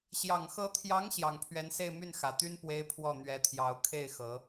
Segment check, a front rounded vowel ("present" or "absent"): present